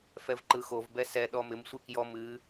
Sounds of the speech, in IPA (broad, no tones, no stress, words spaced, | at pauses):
fɛvǃɯxovbɛ sɛɗɔ mɪmsʷɨ kjɔm ɨ